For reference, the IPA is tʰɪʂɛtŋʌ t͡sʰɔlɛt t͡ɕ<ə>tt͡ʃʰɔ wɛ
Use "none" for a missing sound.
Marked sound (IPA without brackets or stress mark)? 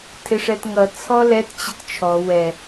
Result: ə